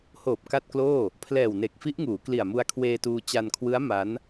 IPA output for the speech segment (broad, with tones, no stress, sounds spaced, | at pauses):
h oː˨˩ p̚ k a˥˩ t̚ k l oː˥˩ | pʰ l ɛː˨˩ w n e˨˩ k̚ f i˦˥ ʔ ŋ uː˩˦ k l i˨˩ a̯ m u˧ a̯ kʰ w eː˧ t uː˧ t͡ɕ a˧ n kʰ w ɯ˦˥ a̯ m a˦˥ n